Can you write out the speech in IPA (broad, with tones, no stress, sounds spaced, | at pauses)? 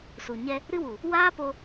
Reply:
s u˨ ɲ ɛ˧ | ɾ ɨ˦ w u˨ | w aː˦ p o˧